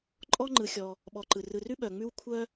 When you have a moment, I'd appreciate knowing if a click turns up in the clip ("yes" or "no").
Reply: yes